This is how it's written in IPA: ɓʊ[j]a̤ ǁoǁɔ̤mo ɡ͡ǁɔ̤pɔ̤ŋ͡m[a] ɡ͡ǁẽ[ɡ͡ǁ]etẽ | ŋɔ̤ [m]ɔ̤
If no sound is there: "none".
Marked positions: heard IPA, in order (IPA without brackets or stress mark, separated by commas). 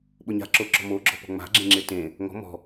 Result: ɲ, a̤, ŋ͡ǁ, m